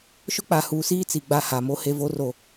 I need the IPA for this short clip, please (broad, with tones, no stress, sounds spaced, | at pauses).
ʃ ʊ˦ k͡p a˨ h uː˨ s iː˦ t͡s i˨ ɡ͡b a˦ h a˨ m o˦ h e˦ v o˦ r o˨